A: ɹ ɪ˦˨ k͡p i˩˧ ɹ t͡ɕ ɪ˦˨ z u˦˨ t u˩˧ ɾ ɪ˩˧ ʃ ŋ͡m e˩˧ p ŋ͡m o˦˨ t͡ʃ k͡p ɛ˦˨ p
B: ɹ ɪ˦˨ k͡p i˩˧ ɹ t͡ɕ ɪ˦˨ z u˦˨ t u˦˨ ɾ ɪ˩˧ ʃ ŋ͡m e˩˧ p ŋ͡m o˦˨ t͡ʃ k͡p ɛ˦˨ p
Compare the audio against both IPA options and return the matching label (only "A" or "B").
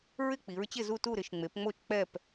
B